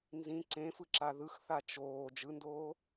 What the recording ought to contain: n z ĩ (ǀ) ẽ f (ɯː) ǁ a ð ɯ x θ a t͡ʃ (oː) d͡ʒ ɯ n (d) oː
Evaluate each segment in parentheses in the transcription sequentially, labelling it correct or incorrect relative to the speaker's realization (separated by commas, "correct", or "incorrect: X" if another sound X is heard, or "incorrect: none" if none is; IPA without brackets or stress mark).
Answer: correct, incorrect: ɯ, correct, correct